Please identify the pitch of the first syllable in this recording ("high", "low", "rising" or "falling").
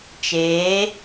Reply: rising